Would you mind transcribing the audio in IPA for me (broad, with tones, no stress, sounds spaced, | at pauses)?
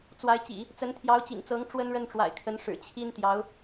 t͡s w a˧˥ ɪ̯ t͡ɕ ḭ˨˩˦ | t͡s ə˧˥ n t̪ʰ j ɑ˧˥ ʊ̯ t͡ɕ ḭ˨˩ ŋ t͡s ɤ˧˥ ŋ ʈ͡ʂ w ə˥ n ɻ ə˥˩ n ʈ͡ʂ w a̰˨˩ ɪ̯ kʰ ə˧˥ n ʂ ɻ̩˨˩ t͡ɕʰ i˥ n t̪ j ɑ˧˥ ʊ̯